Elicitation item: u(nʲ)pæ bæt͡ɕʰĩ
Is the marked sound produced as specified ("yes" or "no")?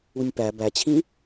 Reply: yes